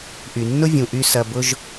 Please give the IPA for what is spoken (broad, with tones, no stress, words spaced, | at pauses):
ʔy˩nːʊ˥vʲũ˩ʔy˧ sɐ˧bʊ˥ʒ